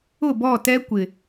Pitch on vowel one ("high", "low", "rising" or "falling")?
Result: falling